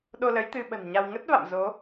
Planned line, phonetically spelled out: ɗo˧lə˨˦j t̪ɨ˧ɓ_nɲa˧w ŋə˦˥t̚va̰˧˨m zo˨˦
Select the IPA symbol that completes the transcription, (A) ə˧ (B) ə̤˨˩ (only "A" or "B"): B